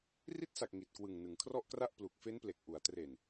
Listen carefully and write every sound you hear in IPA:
r i˦˥ t̚ s a˨˩ k̚ ŋ i˨˩ t̚ k w ɯ˨˩ ŋ n ɯ˩˦ ŋ kʰ r ɔ˥˩ ʔ k r a˥˩ ʔ p l u˨˩ k̚ f e˦˥ n p l e˨˩ k̚ ʔ u˩˦ a̯ t r e˨˩ n

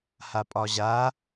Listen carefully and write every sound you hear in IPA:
h a pʼ ɒ ʑ a

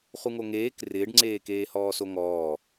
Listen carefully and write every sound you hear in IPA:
χ u ŋ o ŋ eː k r ɪː ɖ ŋ͡ǀ eː k eː h ɔː s o ŋ ɔː

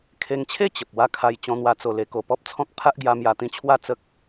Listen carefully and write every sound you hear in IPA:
kʰ e˧ ŋ t͡ɕʰ e˥˧ t͡ɕ ə˨ p̚ w a˥˧ kʰ a˧ j t͡ɕ ɔ̃˧ n̪ w a˧ t͡s o˨˩ l e˧ k o˧ p ɔ˦ p̚ t͡sʰ ɔ̃˦ k̚ pʰ a˦ ʔ ɡ j a˧ m j a˧ t̪ ĩ˧ t͡ɕʰ w a˥˧ t͡s ə˦ k̚

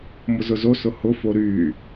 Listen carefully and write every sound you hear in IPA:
m ʊ z ʊ z o s ʊ h ʊ f o ɾ y

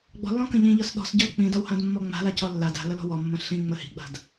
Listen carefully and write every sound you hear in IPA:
ɡ͡b ɔ̤ lː ɔ̃ k ə̃ ʎ ĩ ʎ ɒ s ɗ ɔ̤ s ɟ ɒ l k͡p ĩ d ɒ w h ã d mː ɔ ŋ͡m a̤ l a c ɔ lː a d a̤ l ə l ɔ̤ w ɔ mː ə̃ ɬ ĩ ŋ͡m ə h i̤ ɡ͡b a̤ d

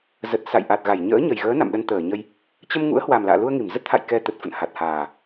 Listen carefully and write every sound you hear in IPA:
z ə˨˩ t̚ s a̰˧˨ j ʔ a˨˩ t̚ ɣ a˧˩ j ɲ ə̰ː˧˥ ɲ ə˨˩ j ɣ əː˨˦ n a̰˧˨ m ɗ ə˧ n t̪ əː˧˩ ɲ ə˧ j | t͡ɕ ə˧ m ŋ ṵ˧˥ ə̯ h w a˨˩ m l a̰ː˧˨ l u˧ ə̯ ŋ i˧˩ m z ə˦˥ t̚ t̪ʰ a̰˧˨ j k ɛ˧ t̪ ə˨˩ t̚ f ə̰˧˨ n h a˨˩ t̚ h aː˨˩

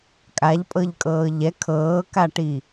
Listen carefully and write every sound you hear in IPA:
kʼ a ʎ pʼ ɤ ʎ kʼ ɤː ʎ ɛ kʰ ɤː k a ʈ i

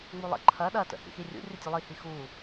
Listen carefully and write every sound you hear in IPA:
ŋ͡m u lˠ ə̰ ǃʰ ɐ ɗ ɐ t ə̰ h ḭ x i rʲ ṵ rʲ ə tʲ u lˠ i h i x u

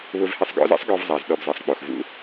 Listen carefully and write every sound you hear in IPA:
β ʊ˧ v h ɪ˧ sˤ ɡ ɔ̰˦ z ɛ̰˦ sˤ ɡ ɔ˧ v zˤ a˨ z ɗ ɔ˧ b z e˨ sˤ k͡p o˨ x v ṵ˦

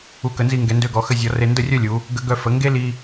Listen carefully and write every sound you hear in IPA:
u˧˩ k ə˩˧ n z i˧ ŋ ɡ ɛ˩˧ n d ø˧ ɡ ɔ˩˧ x ə˧ zʲ ɔ˩˧ r e˧ n d ə˥˧ rʲ œ˥˧ lʲ u˩˧ | ɡ ə˧ ɡ œ˧ f ə˩˧ ŋ ɡ e˥ l i˧

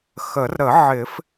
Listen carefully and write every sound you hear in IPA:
x ə˨˩˦ r ɾ ə˨˩˦ ʕ ɪ˨˩˦ f

